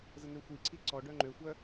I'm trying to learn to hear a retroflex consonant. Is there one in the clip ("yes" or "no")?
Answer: yes